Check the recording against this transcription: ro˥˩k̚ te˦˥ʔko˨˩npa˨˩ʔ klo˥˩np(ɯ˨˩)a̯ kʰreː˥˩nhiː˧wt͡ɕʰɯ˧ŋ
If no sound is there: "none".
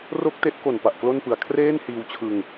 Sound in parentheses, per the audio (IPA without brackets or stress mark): ɯ˨˩